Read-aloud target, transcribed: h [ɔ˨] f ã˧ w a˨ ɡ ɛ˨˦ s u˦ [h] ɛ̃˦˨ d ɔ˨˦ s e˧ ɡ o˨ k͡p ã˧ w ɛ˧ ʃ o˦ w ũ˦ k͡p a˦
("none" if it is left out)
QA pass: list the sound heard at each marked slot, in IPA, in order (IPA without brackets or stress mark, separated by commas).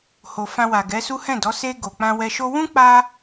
o˨, h